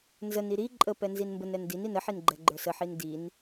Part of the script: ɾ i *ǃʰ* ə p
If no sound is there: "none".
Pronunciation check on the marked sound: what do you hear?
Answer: ǃʼ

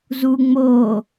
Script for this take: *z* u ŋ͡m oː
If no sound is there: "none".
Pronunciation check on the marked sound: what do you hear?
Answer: z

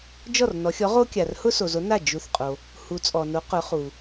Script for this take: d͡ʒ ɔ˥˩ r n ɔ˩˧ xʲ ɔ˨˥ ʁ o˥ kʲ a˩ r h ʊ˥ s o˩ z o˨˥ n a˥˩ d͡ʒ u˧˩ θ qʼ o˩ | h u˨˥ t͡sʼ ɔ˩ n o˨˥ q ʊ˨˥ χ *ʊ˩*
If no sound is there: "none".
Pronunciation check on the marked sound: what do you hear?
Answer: u˩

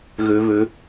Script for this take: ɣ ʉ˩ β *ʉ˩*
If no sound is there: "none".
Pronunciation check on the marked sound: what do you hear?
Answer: ʉ˩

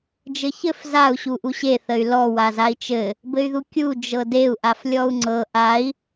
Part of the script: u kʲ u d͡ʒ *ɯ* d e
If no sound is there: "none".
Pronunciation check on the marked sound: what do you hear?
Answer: ɤ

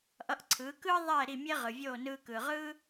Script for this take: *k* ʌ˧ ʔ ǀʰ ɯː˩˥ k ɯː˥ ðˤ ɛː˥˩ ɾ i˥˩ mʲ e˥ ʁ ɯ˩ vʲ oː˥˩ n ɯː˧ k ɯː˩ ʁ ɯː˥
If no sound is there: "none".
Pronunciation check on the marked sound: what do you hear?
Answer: ʔ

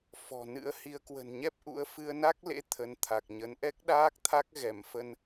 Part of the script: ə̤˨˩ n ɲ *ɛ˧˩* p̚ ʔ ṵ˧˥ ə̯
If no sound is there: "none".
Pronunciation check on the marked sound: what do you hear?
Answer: ɛ˦˥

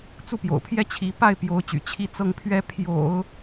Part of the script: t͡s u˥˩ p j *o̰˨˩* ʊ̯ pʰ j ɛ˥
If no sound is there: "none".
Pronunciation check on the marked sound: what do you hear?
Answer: o̰˨˩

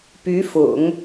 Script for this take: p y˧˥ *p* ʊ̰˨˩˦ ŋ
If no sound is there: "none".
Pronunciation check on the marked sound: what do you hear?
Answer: f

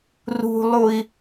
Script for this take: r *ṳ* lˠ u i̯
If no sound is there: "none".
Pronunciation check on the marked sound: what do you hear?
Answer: ṳ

